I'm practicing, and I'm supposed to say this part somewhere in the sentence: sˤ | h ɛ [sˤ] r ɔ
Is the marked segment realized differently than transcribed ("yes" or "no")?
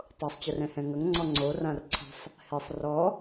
no